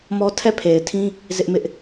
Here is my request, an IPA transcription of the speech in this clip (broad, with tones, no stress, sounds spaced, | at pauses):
m ɔ˦ tʰ ɛ˦˨ pʰ e˨ ɪ̯ tʰ ĩ˦ | z ɪ˦ ʔ m ɪ˦ ʔ